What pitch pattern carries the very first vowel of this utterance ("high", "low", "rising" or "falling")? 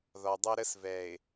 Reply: low